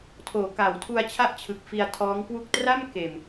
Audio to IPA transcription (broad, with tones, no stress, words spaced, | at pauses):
tʰoː˩˦ka˩˦w tʰu˧a̯t͡ɕʰa˥˩ʔt͡ɕʰɯ˨˩k̚ fi˧a̯tʰɔː˦˥ŋkwu˥˩k̚ tra˥˩m keː˨˩m